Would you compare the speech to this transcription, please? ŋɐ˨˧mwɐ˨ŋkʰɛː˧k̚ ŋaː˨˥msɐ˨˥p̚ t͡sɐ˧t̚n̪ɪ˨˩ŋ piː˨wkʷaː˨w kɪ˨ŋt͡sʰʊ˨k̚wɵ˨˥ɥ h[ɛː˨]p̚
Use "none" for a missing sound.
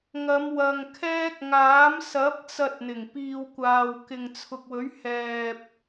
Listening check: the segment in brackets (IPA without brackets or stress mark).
ɛː˨